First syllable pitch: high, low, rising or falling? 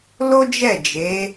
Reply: high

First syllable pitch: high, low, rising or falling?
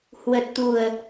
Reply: low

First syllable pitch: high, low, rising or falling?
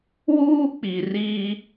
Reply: high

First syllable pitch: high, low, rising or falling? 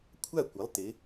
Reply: falling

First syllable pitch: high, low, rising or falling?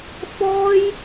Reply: high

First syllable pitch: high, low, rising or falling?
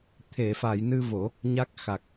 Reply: low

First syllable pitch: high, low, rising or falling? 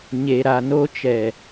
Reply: low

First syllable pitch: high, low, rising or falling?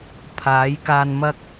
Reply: rising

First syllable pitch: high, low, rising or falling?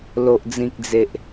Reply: low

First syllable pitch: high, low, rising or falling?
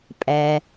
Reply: low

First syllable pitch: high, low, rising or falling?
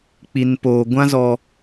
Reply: low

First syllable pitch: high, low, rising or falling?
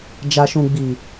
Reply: low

